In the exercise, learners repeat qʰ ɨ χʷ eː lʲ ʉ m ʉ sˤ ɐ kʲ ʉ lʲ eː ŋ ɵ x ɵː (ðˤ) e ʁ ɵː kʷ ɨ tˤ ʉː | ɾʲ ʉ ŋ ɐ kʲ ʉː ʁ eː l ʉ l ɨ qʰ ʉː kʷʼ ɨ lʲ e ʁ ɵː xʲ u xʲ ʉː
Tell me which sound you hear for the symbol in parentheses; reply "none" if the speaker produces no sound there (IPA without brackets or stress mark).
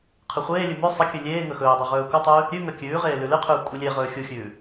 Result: dˤ